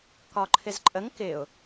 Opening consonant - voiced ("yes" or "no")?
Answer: no